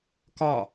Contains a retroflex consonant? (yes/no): no